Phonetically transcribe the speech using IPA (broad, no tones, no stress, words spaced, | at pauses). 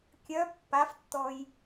kʲœ pːaftːɔj